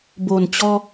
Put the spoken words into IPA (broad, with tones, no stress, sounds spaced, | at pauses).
b o˨˩ n t͡ɕ ɔ˧